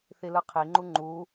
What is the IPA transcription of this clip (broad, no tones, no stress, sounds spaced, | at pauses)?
θ i l ɯ qʰ i ŋ͡ǃ u ŋ͡ǃ u